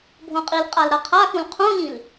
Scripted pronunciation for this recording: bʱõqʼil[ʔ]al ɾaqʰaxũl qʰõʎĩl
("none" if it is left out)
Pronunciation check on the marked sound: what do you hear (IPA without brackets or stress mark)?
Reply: qʼ